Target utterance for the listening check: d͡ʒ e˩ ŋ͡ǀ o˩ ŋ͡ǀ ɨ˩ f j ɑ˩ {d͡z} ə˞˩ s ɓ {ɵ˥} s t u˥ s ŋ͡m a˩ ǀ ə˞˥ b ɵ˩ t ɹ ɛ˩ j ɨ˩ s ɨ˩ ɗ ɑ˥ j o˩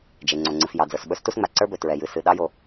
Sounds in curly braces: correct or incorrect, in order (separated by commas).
correct, correct